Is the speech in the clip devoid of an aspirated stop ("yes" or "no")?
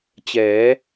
yes